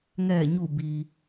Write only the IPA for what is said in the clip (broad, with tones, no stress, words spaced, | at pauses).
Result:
ŋɛː˧˩ɲu˧˩ bi˩